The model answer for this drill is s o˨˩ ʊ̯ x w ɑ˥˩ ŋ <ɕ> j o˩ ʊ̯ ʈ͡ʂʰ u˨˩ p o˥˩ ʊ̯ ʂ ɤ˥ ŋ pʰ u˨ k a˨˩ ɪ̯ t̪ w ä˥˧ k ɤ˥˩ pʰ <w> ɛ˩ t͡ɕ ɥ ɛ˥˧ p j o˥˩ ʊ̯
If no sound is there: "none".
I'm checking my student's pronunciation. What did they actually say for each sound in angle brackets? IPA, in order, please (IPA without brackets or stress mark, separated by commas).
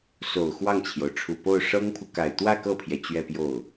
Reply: t͡ɕʰ, j